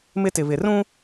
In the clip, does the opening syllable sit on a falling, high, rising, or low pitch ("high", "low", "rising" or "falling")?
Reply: high